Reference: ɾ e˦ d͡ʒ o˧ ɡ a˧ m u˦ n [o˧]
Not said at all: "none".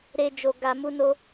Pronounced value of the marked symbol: o˧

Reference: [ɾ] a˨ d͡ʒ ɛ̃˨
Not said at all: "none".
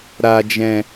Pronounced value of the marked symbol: ɾ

